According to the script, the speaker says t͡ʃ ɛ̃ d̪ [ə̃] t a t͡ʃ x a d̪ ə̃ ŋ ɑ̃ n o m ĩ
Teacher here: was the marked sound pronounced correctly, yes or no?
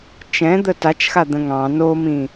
no